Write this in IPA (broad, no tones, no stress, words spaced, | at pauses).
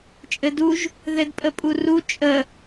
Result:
t͡ʃʼɘduʒ | ðɘdpʼəpʼuru t͡ʃʼə